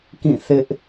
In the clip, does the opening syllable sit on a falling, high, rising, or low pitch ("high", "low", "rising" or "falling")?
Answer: falling